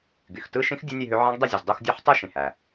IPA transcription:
ɡ y˩ x t ɯ˥˧ ʃ ĩ˦˥ x dʲ ɯ˦˥ nʲ e˥˧ ɦ ø˦˥ ʕ ɑ̃˦˥ ɡ dˤ e˥˧ zʲ ɯ˩ z dˤ u˥˧ x dʲ o˦˥ ħ tˤ ɯ˥˧ ʃ ĩ˩ h æ˩

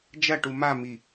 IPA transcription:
d͡ʒ ɐ ʈ u m a m i

